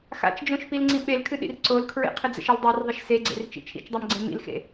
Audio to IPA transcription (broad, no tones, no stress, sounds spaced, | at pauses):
x a̰ t͡ʃ d͡ʒ õ ʃ p i l ŋ͡ǀ ĩ ɓ e l kʰ ɨ ɗ ḭ r ǀ o l kʰ ɹ ḛ qʰ ə d͡z ə̰ ʃ ə l dˤ e r ðˤ ə ʃ s e ɡ͡ǀ ḛ r t͡ʃ ḭ t͡ʃʰ ḭ t͡ʃ dˤ a m ɡ͡ǀ ẽ m ḭ l x ḛ